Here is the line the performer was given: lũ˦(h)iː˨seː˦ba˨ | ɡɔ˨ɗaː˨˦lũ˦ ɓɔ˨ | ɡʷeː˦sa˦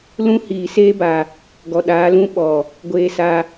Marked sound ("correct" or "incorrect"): correct